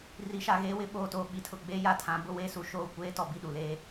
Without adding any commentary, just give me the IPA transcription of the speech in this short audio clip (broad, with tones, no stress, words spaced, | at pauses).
ri˨˦ʃa˨ɣeː˦wɪ˦ ɓoː˨toː˨ɓi˨˦tʰʊ˨ ɡ͡beː˦ja˦˨tʰã˨˦ bʊ˦weː˦su˨ʃoː˦˨ kʷeː˦ tɔ˨bi˦˨ɗu˨leː˦